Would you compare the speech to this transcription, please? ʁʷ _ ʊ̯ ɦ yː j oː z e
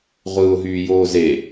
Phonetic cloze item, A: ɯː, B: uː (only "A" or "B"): A